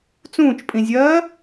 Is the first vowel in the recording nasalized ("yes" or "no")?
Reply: yes